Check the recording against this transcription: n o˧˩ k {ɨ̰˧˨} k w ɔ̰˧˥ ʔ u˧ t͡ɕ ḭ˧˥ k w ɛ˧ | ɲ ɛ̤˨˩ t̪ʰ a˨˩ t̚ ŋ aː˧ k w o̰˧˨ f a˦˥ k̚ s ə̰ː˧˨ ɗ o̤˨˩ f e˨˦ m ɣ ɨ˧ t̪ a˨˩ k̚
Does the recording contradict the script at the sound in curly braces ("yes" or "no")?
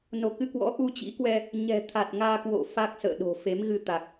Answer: yes